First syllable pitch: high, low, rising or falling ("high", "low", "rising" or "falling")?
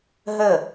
falling